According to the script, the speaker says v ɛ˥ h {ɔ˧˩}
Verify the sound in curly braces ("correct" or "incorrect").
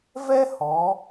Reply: incorrect